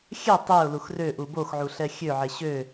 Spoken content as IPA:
xʲ ɛ tˤ e ʊ̯ l u x r ø ʔ u b o x ʕ u ɬ ɛ xʲ ø ʕ e ɕ ø

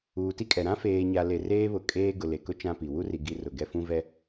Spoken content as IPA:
uː˨ t i˦ kʼ ɛ˨ ɾ ã˦ f eː˨ ɲ a˨ l e˨ r eː˦ β ʊ˨ kʼ eː˦ ɡ ʊ˨ l e˨ k ʊ˦ t͡ʃ ã˦ p i˨ w u˦ r i˨ ɡ i˨˦ r ʊ˨ ɡ ɛ˦ f ũ˦ v ɛ˦

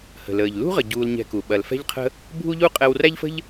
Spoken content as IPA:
h ə̤˨ l əː˨ ʎ l ṳ˦ ʁ ə˨ ɟ uː˧ l ɲ ɛ̤˧ k u˨ ɓ ɐ˨ l f ɛ̤˦ ʎ qʰ ə̤˦ | bʱ u˦ ʎ u˦ qʼ ɛ˧ w r æ˦ ʎ f ə̤˦ ʎ

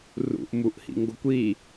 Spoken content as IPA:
r ṵ ʔ m u ʔ h ḭ ŋ ɡ o kʷ i

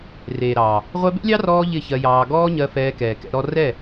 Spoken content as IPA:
r eː˨ ɾ ɑː˨ | ʁʷ ɛ˧ b ḛ˦ lʲ ɑ˦ r ɔː˧ ʎ ɪ˦˨ ç ɜ˧ j ɑː˧ ɡ ɔː˦ ɲ ɜ˧ f ɛː˧ k ɛː˨ k ɛ̰˧ ɾ ɔ˦ r ɛ˦˨

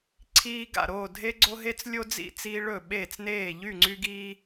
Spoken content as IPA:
ǀʰ iː˦ ɡ a̰˥˩ ɾ oː˥˩ dʱ e˦ ɡ͡ǀ o˦ ɦ e˦ t͡s lʲ o˦ d͡z ḭ˥˩ t͡s iː˦ ɭ ɵ˥˩ ɓ eː˥˩ t͡s n eː˥˩ ʎ y˥˩ ŋ͡ǀ y˦ ɡ iː˦

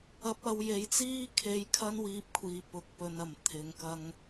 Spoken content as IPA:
ɐ˧ p̚ ɐ˧ w j e˨˥ j t͡s iː˥ kʰ e˧ j kʰ ɐ˥ n w iː˧ p̚ kʷʰ iː˨ p ʊ˨ k̚ p ɵ˨˧ n ɐ˨˩ m t̪ʰ ɪ˨ ŋ k ɐ˧ ŋ

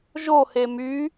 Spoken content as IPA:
ʒ o h e m y

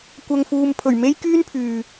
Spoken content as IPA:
kʷ ɐ˨ ŋ f uː˨ m pʰ ɵ˨˩ ɥ m e˥ j k yː˥ n pʰ yː˨

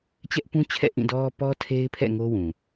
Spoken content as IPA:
t͡ɕ ɛ˦ ʔ p ũ˦ t͡ɕʰ ɛ̰˦˨ ʔ ĩ˦˨ d ɔ˦ p ɔ˦ tʰ e˦ ɪ̯ pʰ ɛ̰˦˨ ŋ o˦ w ũ˨

